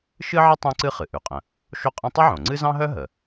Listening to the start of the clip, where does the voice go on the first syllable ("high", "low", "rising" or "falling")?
high